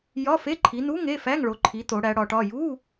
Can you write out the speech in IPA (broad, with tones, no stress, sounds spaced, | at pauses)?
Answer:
j ɒ˧˥˧ f e˧˥˧ ǃʰ i˨˦ n u˧˥˧ ŋ e˧˥˧ f æ˧˥˧ ŋ ɭ o˨˦ ǃʰ i˨˦ t o˨˦ ɽ æ˨˦ ɽ ɒ˨˦ ʈ ɒ˧˥˧ j u˧˥˧